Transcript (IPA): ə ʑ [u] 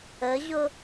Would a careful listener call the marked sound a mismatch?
yes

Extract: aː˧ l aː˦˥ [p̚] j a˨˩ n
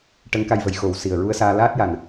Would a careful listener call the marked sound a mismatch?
yes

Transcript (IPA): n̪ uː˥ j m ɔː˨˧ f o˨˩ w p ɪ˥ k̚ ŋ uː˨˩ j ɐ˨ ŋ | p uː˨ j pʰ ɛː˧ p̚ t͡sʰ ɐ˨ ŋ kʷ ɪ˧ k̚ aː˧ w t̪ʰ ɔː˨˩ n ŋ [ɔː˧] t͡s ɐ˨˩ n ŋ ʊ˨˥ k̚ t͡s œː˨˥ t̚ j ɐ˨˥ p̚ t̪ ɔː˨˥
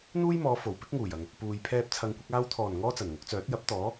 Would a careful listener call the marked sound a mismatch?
yes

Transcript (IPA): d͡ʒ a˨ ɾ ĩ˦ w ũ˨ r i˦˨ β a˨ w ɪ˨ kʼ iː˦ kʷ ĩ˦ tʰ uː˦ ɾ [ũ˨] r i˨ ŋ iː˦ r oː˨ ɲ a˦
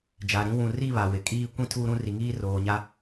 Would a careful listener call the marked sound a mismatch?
yes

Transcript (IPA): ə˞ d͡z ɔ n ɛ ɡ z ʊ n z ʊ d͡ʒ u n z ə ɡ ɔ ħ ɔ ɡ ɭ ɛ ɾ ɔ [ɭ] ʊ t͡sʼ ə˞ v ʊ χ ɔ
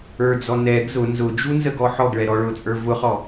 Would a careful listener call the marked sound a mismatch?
no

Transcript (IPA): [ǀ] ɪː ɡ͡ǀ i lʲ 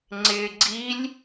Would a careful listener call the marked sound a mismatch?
yes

